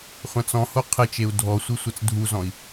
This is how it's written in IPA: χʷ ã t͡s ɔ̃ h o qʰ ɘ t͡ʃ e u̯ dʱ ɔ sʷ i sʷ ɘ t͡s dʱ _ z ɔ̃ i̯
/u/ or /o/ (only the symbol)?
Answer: u